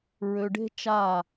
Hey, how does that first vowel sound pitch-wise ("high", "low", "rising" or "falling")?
low